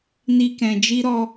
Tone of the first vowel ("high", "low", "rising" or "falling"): high